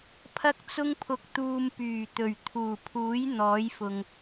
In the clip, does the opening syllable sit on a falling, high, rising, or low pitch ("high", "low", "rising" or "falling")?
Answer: high